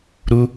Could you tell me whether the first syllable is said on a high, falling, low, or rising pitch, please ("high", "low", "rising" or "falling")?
high